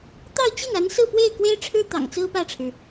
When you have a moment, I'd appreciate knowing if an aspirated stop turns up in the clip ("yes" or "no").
yes